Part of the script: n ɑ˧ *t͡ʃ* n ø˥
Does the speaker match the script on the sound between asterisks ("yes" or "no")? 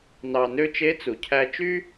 no